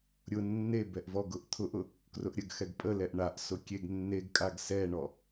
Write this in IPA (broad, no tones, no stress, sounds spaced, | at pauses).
ɾʲ ʊ nː e b ɛ ʔ v ɔ ɡ ʊ ʔ t̪ʰ ʊ ʔ ʊ | k r ʊ ʔ ɾʲ ə ɡ x ɛ ɡ pʼ ə l ɛ ʔ ɳ a ʔ s ʊ kʲ e ɡ nː e ɡ kʼ a ɡ s ɛ ɳ ɔ